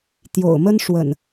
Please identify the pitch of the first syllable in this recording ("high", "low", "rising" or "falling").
low